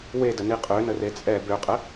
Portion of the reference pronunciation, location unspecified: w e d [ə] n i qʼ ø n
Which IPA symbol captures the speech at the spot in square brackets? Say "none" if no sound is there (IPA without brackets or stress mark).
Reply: ə